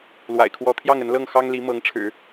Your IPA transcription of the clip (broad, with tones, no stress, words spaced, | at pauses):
lwa̰˨˩ɪ̯kʰwɔ˧˥ t̪ʰjɑ˥˩ŋə˧˥nlɤ˥˩ŋ xɑ˥ŋli˧˥ mɤ˧˥ŋʈ͡ʂʰɻ̩˨˩˦